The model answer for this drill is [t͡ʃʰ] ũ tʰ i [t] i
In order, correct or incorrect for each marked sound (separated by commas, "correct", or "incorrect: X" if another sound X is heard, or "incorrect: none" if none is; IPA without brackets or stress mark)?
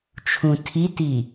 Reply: correct, correct